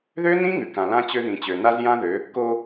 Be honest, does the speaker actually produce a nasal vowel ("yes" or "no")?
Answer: yes